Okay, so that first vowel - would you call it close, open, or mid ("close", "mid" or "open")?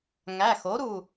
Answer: open